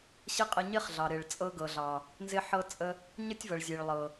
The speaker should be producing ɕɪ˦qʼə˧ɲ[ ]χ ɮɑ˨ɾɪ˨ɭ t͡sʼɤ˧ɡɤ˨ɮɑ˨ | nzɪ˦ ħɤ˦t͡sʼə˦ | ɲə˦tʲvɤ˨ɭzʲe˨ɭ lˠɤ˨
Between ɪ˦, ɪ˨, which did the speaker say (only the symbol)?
ɪ˦